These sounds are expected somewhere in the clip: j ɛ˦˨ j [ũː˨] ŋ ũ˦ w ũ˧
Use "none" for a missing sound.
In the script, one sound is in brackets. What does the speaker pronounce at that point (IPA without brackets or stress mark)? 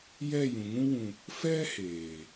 ũ˨